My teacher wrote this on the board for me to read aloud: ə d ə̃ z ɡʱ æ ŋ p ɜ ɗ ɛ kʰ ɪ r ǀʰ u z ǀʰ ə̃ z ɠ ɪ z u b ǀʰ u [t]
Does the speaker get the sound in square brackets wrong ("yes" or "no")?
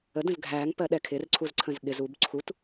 no